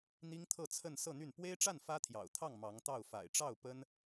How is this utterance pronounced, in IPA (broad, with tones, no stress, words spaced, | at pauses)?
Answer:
n̪i˥ŋt̪ʰɤ˥˧t͡sʰə˥˧n sɤ˥˧n̪y˥˩n pwe˥ɪ̯ʈ͡ʂa˥˩n fä˥t̪ʰjɑ̰˨˩ʊ̯t̪ʰɑ˥˩ŋ mɑ˧˥ŋt̪ɑ˥˩ʊ̯ fa̰˨˩ɪ̯ʈ͡ʂɑ˥˩ʊ̯ pə˥n